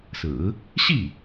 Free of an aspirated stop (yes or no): yes